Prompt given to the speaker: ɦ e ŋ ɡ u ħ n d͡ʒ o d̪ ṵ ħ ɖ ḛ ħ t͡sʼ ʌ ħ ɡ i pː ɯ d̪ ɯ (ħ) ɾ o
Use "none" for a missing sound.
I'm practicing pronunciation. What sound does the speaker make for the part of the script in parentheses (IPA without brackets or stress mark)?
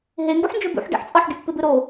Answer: none